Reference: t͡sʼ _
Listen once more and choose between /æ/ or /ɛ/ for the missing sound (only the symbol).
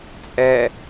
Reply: ɛ